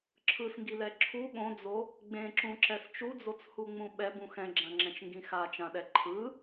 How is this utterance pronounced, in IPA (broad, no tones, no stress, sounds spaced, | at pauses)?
ǁʰ ɯ s ŋ ɡ i l ɛ ǁʰ u ɠ õ d͡z o | ɡ͡b ẽ ǁ ũ ǁ ɛ s t͡ʃ u d͡z o t͡s h u ŋ͡m ũ ɓ ɛ b ũ x ɛ̃ ɡ͡ǁ ã ŋ͡ǁ ɛ̃ t͡ʃ ŋ ɡ ĩ x a t͡ʃ ã ɗ ɛ ǃʰ ɯ